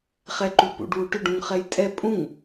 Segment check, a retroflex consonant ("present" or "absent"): present